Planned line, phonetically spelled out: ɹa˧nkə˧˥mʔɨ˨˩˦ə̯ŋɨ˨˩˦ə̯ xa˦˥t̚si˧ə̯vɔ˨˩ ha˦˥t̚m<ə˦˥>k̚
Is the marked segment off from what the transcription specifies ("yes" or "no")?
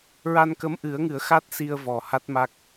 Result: yes